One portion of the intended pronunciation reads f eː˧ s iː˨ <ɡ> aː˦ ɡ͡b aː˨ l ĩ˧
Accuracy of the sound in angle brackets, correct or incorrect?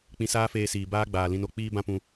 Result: incorrect